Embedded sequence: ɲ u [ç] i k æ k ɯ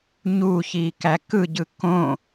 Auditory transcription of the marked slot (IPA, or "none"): ç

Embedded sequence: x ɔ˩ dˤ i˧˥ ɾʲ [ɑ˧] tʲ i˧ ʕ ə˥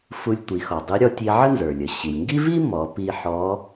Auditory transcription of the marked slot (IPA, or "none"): ɔ˧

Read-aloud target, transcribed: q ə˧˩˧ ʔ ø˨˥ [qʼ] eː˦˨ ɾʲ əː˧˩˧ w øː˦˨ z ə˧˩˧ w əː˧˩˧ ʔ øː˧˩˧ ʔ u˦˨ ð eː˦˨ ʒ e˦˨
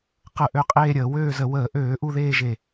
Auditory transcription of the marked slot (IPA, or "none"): qʼ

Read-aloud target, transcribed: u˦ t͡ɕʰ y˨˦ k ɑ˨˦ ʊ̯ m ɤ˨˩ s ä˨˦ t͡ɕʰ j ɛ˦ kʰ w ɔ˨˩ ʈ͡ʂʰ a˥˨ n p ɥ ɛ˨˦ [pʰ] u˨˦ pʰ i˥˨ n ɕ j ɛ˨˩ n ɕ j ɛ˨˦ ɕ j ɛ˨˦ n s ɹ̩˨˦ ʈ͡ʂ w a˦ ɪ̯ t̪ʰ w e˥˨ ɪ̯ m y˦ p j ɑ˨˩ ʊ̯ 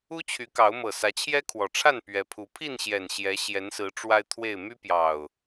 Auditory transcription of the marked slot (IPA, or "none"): pʰ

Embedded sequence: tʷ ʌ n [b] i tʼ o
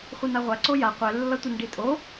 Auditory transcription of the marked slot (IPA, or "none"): ɖ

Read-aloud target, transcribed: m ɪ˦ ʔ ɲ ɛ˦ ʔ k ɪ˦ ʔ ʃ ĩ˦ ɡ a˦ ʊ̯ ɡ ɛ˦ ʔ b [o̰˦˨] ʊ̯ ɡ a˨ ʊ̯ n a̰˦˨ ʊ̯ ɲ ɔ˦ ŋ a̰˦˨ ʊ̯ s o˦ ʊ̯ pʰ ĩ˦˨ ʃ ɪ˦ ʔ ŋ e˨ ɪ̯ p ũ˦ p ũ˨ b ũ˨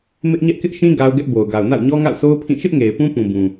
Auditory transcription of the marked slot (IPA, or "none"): o˨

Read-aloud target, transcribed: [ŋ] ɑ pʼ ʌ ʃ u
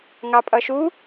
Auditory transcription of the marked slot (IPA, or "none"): ŋ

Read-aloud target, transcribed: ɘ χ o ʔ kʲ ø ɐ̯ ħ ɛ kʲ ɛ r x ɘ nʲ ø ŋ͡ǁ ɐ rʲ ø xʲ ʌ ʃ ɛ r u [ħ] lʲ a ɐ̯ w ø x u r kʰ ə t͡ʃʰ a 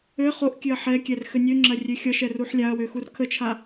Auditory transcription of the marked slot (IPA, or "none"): ħ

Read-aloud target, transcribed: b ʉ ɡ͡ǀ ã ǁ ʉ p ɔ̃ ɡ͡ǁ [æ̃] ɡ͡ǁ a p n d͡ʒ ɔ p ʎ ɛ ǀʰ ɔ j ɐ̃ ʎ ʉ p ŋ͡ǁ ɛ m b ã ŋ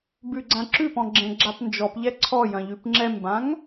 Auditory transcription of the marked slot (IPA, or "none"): ɛ̃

